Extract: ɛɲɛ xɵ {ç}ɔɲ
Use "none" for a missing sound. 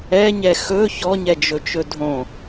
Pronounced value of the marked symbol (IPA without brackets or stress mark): ç